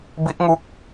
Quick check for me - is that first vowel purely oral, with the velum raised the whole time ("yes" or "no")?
yes